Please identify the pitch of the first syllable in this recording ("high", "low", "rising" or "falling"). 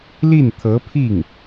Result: falling